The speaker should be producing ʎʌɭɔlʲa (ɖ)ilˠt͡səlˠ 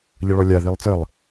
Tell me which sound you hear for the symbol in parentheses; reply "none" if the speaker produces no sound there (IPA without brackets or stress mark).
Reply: ð